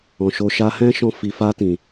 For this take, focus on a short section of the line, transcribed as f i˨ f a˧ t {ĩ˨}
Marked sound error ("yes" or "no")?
no